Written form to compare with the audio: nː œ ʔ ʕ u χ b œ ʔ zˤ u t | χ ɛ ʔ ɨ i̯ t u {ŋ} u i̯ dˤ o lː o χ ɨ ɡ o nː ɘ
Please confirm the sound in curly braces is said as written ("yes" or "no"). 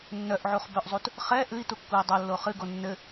no